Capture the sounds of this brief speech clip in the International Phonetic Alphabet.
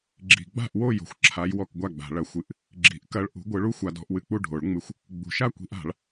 ɡ͡ǁ i̤˨ ɡ͡b a̤˥˨ ʔ w o˥˨ j o̤˨ xʷ ǁʰ a˨˦ j w ɔ˥˨ k ɡʷ a˥˨ ɡ͡b a̤˨˩˦ ɭ ɐ˨˩˦ xʷ ɨ˨˩˦ ʔ | ɡ͡ǁ i̤˨˩˦ ʔ k ɐ˦ ɭ ʔ ṳ˨˦ ɡʷ ɯ˨˦ ɭ u˦ xʷ a˨˦ d ɔ̤˨˦ ʔ w ɨ˨˦ k͡p u˥˨ ɖʱ o˨˩˦ ɭ ŋ͡m ɨ˨˦ xʷ | ɡ͡b ṳ˨˩˦ ʃ a˥˨ kʷ i̤˨˦ ʔ a̤˨˩˦ ɭ

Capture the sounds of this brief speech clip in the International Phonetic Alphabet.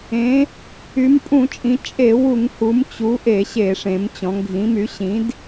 ẽ˩˧ | y˩˧ m pʼ ũ˧˩˧ t͡ʃʼ ĩ˩˧ t͡ʃʼ e˧˩˧ w u˧˩˧ ŋ h u˩˧ m t͡ɕ u˩˧ ʔ e˧˩˧ ɕ e˧˩˧ ʂ ẽ˩˧ m t͡ɕ ɔ̃˩˧ ŋ ɡʱ ĩ˩˧ m y˩˧ ɕ ĩ˩˧ d

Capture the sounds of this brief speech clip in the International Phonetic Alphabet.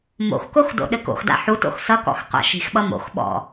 m o̰ x k o x d o̰ ɗ ɘ k o̰ x d a̰ ħ u t o̰ x s ʌ k ɔ̰ x qʷ a̰ ʃ i̤ x ɓ ʌ m o̰ x ɓ ɔ̰

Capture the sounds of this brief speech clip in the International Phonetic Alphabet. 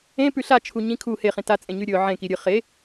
ẽ p ʉ ɬ a t͡ʃʰ u ɲ ĩ kʰ u h e χ ĩ t a t͡sʼ ẽ ɲ ʉ ɾʲ ɵ ʕ ẽ k i ɾʲ ɨ χ e

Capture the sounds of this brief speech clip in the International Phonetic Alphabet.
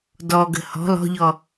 d ɔ ɡ ə̤ h ɔ̤ l ɔ̤ ʎ ɔ

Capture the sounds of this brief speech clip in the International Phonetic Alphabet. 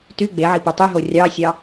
t y ɡ͡b e ʕ i p u tˤ y ɦ o rʲ ɑ sʲ ɑ

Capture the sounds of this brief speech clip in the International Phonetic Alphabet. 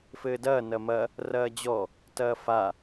f ɘː d ɐː n ɐ m ɐ | r ɐː d͡ʑ ɔ | t ɐː f a

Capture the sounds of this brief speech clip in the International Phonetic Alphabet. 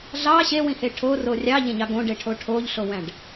ɮ ɑ ɕ e w ĩ h e ʈʰ o r o rʲ ɑ ʎ ẽ ɲ ɑ ɡ õ ɖ e ʈʰ o ʈʰ o ʎ ɬ o w æ̃ ɖ

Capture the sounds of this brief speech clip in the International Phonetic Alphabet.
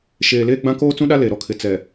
ʃ eː˨ l eː˦ ɡ͡b ã˦ k oː˦ t͡s ũ˦ ɗ a˦ l e˨ ɾ ɔ˦ kʰ ɪ˨ t͡s ɛ˨

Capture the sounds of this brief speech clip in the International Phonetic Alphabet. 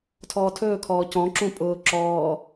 tʰ ɔː tʰ ɵː kʰ ɔː c ɔ̃ ǁ ũ pʼ ʊː ǁ ɔː

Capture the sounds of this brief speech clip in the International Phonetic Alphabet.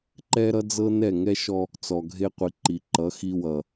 ǃ ɛ˦ ɾ ʌ˦ d͡z ɤ˦ n ɛ˦˨ ŋ ɛ˦ ʃ ɔ˦ | t͡s ɔ˨ ɡʱ e˦ qʷ i˨ ǃ i˨ ǃ ʌ˨˦ x i˦ w ʌ˨

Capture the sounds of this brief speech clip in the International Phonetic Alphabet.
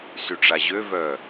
s y ʈ͡ʂ a ʑ ø v œ

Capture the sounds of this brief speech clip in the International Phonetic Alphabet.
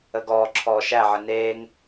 ə ɡ ɔː ǁʰ ɔː ʃ æ ʕ ə n eː ŋ

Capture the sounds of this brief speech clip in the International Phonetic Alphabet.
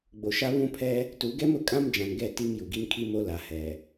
ɡ͡b o˨ ʃ a˦ β ũ˦ pʰ ɛ˦ | t u˨˦ ɡ ɛ˦ m ʊ˨ kʼ ã˦ m d͡ʒ ã˨ n ɡ ɛ˦˨ t i˦ m j u˨ ɡ i˦ n kʰ i˦ m o˦ l a˨ h ɛ˨

